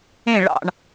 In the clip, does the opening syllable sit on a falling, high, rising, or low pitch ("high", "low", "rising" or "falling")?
falling